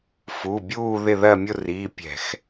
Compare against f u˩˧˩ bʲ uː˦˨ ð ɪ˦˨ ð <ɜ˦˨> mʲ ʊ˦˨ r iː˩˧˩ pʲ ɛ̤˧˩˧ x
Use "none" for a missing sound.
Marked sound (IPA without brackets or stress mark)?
ɜ˦˨